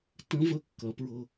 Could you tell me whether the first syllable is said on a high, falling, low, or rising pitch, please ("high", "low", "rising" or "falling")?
rising